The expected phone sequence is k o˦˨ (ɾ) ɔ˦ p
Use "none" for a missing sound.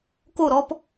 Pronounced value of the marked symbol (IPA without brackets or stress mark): ɾ